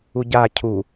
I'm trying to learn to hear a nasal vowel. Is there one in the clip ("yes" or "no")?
no